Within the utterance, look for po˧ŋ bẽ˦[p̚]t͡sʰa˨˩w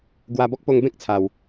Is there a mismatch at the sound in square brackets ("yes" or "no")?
yes